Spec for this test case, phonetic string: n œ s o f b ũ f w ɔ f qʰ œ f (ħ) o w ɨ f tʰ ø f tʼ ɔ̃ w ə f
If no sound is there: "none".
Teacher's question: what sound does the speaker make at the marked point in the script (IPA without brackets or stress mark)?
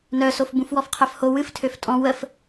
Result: h